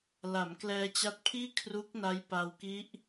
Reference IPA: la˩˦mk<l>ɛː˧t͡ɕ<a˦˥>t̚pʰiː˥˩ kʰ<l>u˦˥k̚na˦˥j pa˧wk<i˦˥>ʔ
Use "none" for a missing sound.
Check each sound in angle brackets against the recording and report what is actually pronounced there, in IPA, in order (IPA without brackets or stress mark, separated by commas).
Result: l, a˦˥, r, i˦˥